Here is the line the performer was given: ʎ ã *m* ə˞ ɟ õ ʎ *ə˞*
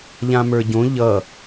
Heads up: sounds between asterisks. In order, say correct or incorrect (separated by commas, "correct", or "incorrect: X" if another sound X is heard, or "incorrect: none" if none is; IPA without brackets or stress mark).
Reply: correct, incorrect: ʌ